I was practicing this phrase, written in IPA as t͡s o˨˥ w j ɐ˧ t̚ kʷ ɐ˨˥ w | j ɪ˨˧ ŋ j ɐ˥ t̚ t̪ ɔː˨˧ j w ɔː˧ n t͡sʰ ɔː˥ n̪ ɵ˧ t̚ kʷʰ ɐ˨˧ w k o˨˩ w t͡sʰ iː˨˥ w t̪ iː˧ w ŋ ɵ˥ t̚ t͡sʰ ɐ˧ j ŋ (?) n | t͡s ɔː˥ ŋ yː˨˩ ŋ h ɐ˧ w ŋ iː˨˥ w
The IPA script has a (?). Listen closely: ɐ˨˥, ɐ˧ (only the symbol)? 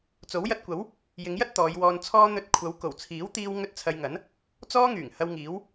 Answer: ɐ˨˥